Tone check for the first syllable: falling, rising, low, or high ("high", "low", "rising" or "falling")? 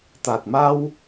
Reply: low